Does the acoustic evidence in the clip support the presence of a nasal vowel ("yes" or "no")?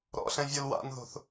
yes